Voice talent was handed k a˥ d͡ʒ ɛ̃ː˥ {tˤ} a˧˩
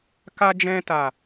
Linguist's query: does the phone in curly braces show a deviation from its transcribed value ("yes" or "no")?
yes